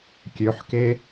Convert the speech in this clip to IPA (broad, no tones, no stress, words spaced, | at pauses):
kʲøħke